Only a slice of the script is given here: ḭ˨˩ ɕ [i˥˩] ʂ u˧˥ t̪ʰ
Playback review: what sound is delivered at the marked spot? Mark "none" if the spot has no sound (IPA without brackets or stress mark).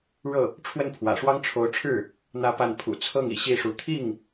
i˥˩